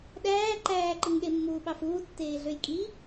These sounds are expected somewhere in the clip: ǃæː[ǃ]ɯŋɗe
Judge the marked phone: correct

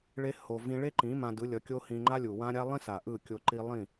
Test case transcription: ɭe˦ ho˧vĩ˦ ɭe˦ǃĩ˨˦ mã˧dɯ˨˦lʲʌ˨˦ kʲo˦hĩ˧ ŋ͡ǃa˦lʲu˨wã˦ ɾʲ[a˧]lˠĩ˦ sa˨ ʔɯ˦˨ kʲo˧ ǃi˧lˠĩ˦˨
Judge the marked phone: incorrect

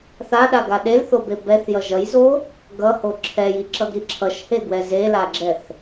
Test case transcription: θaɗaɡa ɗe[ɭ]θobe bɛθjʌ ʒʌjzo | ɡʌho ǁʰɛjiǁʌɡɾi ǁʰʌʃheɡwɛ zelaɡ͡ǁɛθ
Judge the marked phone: incorrect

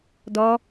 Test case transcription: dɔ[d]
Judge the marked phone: incorrect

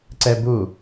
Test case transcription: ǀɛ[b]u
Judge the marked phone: correct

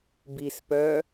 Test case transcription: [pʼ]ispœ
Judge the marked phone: incorrect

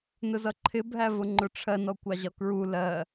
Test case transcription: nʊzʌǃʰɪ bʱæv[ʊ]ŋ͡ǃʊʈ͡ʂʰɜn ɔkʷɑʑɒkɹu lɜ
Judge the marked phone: correct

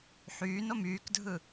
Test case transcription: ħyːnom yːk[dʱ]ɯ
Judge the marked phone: correct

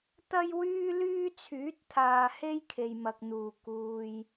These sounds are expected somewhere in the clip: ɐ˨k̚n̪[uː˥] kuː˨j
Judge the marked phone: incorrect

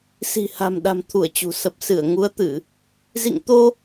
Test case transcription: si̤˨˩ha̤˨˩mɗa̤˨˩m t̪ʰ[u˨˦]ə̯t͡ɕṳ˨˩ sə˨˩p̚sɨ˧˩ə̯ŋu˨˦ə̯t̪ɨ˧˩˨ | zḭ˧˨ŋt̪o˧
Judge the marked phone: incorrect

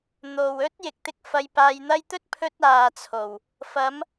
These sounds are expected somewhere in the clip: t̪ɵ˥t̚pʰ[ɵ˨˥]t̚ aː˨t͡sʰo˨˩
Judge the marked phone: incorrect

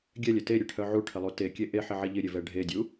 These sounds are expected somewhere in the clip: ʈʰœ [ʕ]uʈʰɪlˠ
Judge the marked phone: correct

